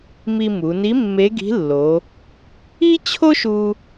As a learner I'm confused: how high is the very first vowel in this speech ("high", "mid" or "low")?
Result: high